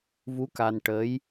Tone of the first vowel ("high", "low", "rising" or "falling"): rising